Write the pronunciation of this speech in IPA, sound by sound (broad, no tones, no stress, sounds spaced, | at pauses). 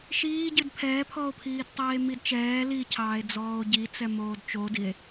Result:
ʃ iː ɟ ɨ d pʰ ɛː pʰ ɔ o̯ pʰ iː d tˤ iː e̯ m i d t͡ʃ ɛː l i cʰ ɑː e̯ d͡z ɔː o̯ ɟ i t͡s ɛ m oː d t͡ʃ o d i e̯